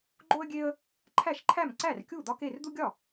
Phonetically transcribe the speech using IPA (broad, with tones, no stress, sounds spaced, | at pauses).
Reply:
ɡ͡ǃ o˦ ə̯ ɡʲ e˦ ə̯ | ǃʰ æ˥˩ ʃ ǃʰ æ˥˩ m ǀ æ˥˩ r kʲ u˥˩ d̪ ɒ˦ k e˥˩ r d̪ u˦ ɡʲ ɒ˥˩